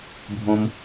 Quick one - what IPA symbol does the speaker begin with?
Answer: bʱ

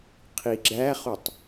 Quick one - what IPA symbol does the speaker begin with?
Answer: qʰ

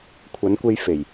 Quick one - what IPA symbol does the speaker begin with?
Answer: kʷʰ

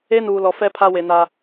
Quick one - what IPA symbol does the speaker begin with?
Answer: e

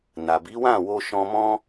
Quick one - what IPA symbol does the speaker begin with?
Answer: n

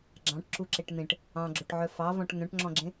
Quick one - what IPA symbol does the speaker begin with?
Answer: ɡ͡ǁ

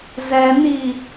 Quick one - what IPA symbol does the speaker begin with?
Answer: z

